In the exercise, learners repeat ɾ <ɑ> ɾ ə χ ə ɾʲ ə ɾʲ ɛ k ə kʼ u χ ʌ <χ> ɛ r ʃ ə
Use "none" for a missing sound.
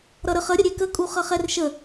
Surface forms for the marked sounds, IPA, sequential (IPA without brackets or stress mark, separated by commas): ʌ, χ